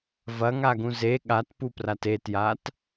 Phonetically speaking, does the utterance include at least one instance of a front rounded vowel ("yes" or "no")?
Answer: no